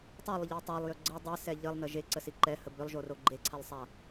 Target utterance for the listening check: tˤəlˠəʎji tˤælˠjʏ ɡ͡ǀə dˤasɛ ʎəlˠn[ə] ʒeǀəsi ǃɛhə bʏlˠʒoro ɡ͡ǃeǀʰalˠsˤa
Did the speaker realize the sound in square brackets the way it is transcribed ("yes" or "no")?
yes